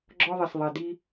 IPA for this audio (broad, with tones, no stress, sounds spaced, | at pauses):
ɡ͡ǁ ɔ˦ ðˤ ɛ˨ s ðˤ ɛ˨ d i˦